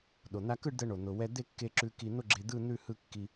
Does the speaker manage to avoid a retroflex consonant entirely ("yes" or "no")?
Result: no